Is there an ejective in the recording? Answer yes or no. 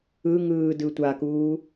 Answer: no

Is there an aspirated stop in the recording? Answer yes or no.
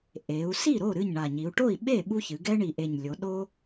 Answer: no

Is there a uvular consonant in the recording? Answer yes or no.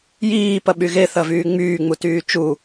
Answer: no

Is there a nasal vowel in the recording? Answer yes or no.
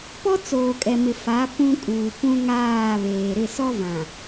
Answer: yes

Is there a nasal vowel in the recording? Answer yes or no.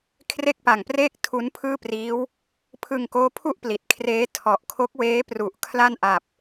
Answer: no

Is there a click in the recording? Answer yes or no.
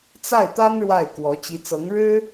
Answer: no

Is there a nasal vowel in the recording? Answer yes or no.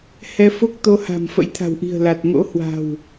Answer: no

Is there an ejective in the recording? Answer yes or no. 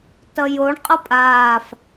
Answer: yes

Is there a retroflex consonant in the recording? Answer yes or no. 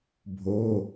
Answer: no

